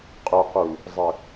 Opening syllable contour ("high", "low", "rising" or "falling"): low